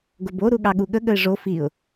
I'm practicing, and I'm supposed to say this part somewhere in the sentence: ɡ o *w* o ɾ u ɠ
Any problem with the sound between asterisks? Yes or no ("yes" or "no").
yes